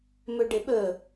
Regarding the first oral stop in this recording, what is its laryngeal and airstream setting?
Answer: plain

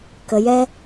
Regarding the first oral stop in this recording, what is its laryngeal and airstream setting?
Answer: plain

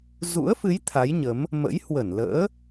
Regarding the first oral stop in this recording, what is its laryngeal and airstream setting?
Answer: aspirated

